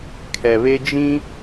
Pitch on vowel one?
low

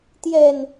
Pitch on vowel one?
low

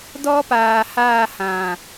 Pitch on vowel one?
high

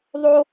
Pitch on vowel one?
high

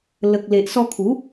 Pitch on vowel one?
low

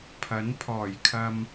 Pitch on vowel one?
rising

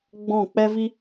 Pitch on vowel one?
falling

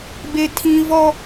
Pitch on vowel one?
high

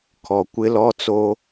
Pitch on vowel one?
low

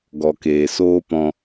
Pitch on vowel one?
low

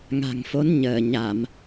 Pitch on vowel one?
low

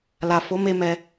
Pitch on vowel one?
low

